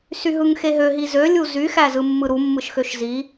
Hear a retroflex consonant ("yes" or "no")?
no